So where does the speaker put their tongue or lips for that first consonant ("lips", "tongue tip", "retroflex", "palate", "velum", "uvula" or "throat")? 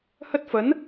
throat